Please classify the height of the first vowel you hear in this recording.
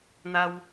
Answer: low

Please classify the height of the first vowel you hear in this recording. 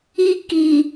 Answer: high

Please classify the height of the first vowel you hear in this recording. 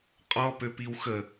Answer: mid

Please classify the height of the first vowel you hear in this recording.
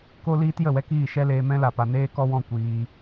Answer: mid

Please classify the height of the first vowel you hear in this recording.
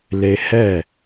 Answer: mid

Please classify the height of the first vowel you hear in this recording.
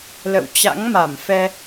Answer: mid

